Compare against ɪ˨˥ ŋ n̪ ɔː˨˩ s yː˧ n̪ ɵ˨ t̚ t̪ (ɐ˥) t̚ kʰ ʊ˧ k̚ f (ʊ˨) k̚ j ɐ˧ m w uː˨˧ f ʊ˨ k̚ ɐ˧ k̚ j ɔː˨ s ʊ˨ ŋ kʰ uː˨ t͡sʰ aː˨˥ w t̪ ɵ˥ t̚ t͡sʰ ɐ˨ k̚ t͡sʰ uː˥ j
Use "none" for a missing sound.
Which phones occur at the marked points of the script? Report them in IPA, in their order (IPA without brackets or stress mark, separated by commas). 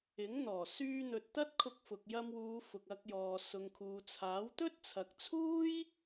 ɐ˥, ʊ˨